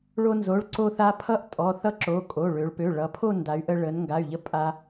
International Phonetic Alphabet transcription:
ɭ o˧ n z o˩˧˩ ɭ ǀ o˧ θ a˧ pʰ ʌ˥˧ ʔ tʼ ɔ˩˧˩ θ ʌ˥˧ ǁ o˩˧˩ kʼ o˩˧˩ ɭ ø˩˧ ɭ p ø˩˧˩ ɭ ʌ˩˧ pʰ o˥˧ n d a˩˧ y̯ ʔ ə˧ ɭ ə˩˧ n ŋ ɡ a˩˧˩ y̯ ʎ ə˧ pʼ a˧

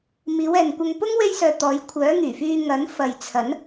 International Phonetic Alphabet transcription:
m iː˨˧ w ɛː˨ n kʷ ɐ˧ ŋ p ʊ˥ ŋ w e˥ j s œː˧ t̪ ɔː˨˧ j kʷʰ œː˨˥ ŋ yː˨˩ f yː˧ ŋ ɐ˨˥ n f ɐ˨ j t͡sʰ ɐ˨˥ n

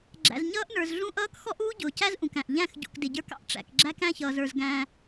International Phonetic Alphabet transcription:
ɡ͡ǁ æ̰˨ z ɲ ʌː˦ ʔ n ə˞˨ z ɮ ũ˦ ʔ ʌː˦ k x ɔ˦ ʔ uː˦ ɟ ʊː˨ c æ˦ z ʔ ũ˨ k æ̃˨ ʔ ʎ æ̃˦˨ x ɟ ṵ˨ k d ɪ˨ ɟ ə˞˦ k ɑ̰˦ ʔ ʈ͡ʂ æ̰˨ k ɡ͡ǁ æ˦ k æ̃˦ ç ʌː˨ z ə˞˨ z ɡ æ̃ː˦

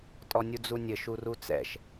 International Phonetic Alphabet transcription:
tʼ ɔ nʲ u d͡z u nʲ ɘ ʃ u r u t͡s ɛ̰ ʃ

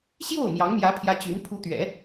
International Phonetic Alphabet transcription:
ɕ j o˥˩ ʊ̯ m j ɑ˧˥ ŋ m j ä˧˥ pʰ j ä˧˥ t͡ɕ y˧˥ n pʰ u˧˥ t̪ ɥ ɛ̰˨˩˦

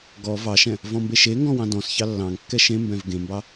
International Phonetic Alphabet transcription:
ɡ ɔ v ɑ ʃ ɛ̃ | v ɔ̃ m b e ʃ e ŋ ɡ ɔ̃ w ɑ̃ d ɔ̃ s ç ɑ lː ɑ̃ ŋ kː ɛ ʃ ẽ m b ɛ̃ v ɡ ẽ m b ɑ

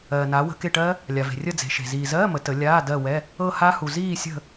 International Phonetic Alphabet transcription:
ɜː˩ n aː˩˧ w ə̤˧˥˧ k e˦˨ ʈ ɜː˦˥ | lʲ a˩ v e̤˩ rʲ ə˦˨ d͡z e̤˩˧ ʃ e̤˩ z iː˩ z ɜː˧˥˧ m ə˩˧ t ə˩˧ lʲ aː˧˥˧ d ɜ˦˨ w ɛ˧˥˧ | ɤ˦˨ h a˦˥ h u˩ z iː˦˨ sʲ ə̤˦˨

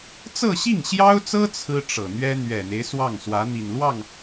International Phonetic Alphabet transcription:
t͡s ɤ˥˧ ɕ i˥˩ ŋ ɕ j ɑ˥ ʊ̯ t͡s ɤ˥ t͡sʰ ɹ̩˥ ʈ͡ʂ ɤ˨˩ n̪ ɥ ɛ˥ n̪ ɥ ɛ˨˩ n̪ e˦ ɪ̯ s w ɑ˥˩ ŋ s w ä˧˥ n̪ i˨˩ n l w ɑ˥˩ ŋ

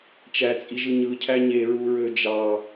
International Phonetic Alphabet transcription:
t͡ʃ æ t͡sʼ i ʒ ɯ ɲ ɯ cʰ æ ɲ e ɹ u ɹ ø d͡ʒ ɑ

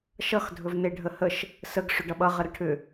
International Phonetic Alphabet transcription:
ʃ ʌ x dʱ ɵ v n e ɖʱ ə h ə ʃ | s ə ɡ ʂ ʏ ɖ ʌ ɓ ʌ ʁ ə ɾ ʌ ʈʰ ʏ

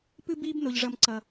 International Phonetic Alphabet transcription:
p ɨ˦ b iː˦ b n o˦ ʎ ʐ ʌ˦ m ǀ ʌ˦

